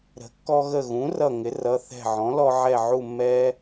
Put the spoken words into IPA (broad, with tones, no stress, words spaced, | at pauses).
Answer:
ɾə̤˩˥kːɔ˧ɣə˧˩ɣũ˩˥ rʌ˧˩ŋɪ˩˥rʌ˩˧˩ θɛ̤˧˩ʕɔ̃˩˥lɔ˧ ʕɛ˧˩ʕu˧˩mːɛ˧